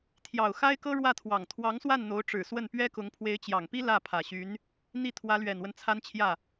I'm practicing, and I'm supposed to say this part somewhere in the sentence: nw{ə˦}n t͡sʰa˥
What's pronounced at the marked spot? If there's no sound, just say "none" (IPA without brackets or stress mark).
ə˦